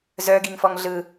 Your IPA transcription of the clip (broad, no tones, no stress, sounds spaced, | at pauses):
z œ ɡ i ŋ f ɔ ŋ ɮ ɯ